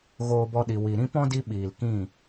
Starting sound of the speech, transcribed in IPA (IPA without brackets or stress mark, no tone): ɣ